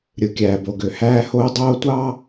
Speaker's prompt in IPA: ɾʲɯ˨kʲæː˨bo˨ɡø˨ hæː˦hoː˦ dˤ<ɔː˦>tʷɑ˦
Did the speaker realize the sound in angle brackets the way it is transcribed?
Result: no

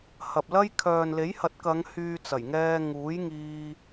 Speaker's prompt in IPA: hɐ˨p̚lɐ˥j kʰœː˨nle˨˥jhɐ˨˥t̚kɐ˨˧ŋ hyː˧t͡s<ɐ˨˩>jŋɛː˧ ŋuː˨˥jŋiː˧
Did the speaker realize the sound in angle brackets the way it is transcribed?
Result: yes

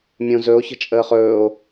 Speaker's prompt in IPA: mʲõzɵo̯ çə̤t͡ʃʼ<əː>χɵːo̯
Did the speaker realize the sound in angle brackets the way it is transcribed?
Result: yes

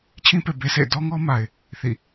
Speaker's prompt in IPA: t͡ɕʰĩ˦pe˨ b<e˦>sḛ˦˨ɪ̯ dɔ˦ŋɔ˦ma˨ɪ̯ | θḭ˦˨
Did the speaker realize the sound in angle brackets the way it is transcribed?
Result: yes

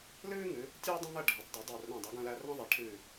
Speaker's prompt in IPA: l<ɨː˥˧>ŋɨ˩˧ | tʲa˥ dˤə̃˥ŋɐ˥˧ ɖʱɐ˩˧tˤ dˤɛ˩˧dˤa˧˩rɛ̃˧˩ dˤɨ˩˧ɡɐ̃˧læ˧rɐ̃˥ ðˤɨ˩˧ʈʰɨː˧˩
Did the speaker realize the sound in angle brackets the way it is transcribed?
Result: no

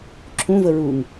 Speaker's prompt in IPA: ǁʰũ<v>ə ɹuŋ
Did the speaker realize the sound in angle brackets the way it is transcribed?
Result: yes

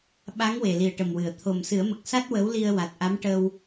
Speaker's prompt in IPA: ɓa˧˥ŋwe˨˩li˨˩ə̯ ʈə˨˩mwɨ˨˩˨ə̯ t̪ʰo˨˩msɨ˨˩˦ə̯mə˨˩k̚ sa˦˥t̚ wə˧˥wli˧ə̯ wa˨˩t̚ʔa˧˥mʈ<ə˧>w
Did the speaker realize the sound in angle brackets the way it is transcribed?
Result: yes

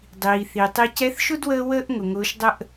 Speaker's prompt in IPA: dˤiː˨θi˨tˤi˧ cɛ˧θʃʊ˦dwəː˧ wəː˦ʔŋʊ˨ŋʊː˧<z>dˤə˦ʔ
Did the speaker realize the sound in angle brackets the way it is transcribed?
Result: no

